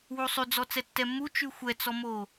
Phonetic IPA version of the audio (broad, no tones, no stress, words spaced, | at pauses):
wusˤyd͡zɔ t͡sɛtːɛmːu t͡ʃʉxʷɛt͡sɔmo